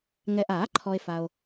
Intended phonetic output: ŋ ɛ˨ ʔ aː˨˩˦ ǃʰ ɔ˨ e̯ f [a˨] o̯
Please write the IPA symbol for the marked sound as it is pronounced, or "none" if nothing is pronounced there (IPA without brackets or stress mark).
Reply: a˨